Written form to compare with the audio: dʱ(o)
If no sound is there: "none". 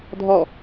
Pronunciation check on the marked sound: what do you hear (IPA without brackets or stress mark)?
ɔ